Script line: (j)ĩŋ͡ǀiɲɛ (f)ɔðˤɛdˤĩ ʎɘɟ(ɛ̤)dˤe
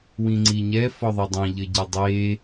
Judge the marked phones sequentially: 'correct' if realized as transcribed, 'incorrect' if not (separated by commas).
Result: incorrect, correct, incorrect